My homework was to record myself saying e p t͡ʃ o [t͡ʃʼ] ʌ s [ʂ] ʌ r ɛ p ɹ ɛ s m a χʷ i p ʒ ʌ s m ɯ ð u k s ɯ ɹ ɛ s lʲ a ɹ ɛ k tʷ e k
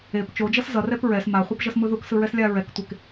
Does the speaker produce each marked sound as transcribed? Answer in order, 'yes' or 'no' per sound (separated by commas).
no, no